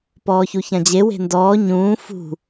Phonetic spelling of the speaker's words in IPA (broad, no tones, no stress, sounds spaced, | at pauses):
p ɔː ç u ç ã d͡ʑ e w e̤ n d ɔː ɲ ũː f ṳ